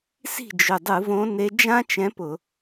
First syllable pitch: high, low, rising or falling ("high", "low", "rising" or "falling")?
falling